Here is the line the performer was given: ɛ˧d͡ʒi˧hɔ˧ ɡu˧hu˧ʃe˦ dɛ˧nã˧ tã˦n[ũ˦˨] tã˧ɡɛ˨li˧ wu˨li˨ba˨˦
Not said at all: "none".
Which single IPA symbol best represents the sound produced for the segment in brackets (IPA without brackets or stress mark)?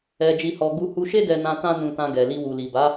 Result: ũ˧